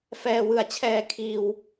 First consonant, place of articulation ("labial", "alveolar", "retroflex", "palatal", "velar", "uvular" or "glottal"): labial